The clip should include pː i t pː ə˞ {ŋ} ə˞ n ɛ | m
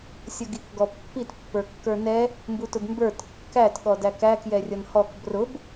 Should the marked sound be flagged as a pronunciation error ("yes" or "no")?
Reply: yes